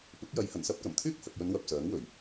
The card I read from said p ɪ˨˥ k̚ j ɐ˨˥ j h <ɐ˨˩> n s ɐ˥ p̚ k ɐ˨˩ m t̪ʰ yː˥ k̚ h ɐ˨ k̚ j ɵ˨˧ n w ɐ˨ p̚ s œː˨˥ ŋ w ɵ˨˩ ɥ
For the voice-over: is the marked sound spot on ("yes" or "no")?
yes